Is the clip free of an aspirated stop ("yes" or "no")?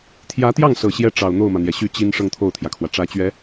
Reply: no